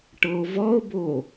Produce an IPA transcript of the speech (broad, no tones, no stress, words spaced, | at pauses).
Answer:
ʈɤo̯vɔo̯bo